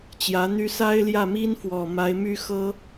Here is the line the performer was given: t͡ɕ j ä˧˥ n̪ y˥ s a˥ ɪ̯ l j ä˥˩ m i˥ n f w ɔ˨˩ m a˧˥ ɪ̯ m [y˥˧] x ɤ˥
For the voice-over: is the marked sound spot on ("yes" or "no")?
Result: no